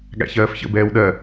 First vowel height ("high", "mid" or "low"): low